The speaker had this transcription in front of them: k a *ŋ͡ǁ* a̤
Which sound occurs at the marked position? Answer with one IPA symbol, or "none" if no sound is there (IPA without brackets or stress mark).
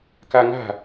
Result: ŋ